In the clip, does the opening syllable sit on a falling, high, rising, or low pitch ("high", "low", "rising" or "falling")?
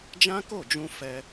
high